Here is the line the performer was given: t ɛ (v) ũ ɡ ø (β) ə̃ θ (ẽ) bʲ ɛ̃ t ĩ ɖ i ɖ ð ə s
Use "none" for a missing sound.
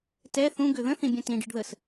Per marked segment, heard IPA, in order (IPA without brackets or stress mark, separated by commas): θ, ð, ĩ